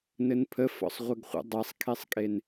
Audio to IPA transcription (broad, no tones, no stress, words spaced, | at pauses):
nɘnpʰə fɔ̰sˤʁʷɘɡχʷə̰ dˤesˤkʰesˤkʼen